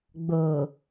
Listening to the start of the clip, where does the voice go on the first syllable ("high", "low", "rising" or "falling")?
low